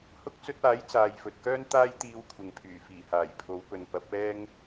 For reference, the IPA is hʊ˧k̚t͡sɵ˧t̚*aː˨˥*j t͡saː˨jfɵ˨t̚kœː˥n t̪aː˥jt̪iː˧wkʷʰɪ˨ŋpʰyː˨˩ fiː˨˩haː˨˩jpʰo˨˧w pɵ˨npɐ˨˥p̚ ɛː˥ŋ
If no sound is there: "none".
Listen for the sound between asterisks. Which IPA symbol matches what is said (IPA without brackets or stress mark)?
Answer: aː˨˥